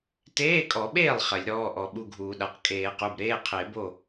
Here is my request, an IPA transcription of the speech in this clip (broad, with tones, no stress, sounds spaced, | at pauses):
t eː˧˥˧ kʼ ɔ˨˩˦ ɓ eː˥˩ lˠ χ ɐ˨˩˦ lʲ ɾ ɔː˧˥˧ ʔ ɔ˨˩˦ ɓ u˧˥˧ ɡʱ uː˨˩˦ ɗ a˩˧˩ q kʼ eː˨˩˦ q u˩˧˩ b ɾ eː˧˥˧ qʰ e˨˩˦ b o˥˩